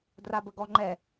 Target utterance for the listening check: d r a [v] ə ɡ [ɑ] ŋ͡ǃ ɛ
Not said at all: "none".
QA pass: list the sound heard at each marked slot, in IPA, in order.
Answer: b, ɔ

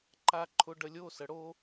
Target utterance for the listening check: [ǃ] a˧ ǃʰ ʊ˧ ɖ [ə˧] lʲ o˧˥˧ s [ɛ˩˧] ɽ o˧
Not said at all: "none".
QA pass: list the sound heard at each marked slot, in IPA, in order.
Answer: ǃ, ə˧, ə˩˧

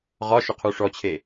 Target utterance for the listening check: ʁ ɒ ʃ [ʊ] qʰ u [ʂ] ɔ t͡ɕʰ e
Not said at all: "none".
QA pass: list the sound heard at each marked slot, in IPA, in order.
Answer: ʊ, ʂ

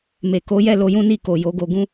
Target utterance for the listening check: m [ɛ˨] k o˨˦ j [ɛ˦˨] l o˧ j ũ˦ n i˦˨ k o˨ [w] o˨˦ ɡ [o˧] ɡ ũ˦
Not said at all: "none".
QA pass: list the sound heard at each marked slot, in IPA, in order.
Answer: e˨, ɛ˦˨, j, o˧

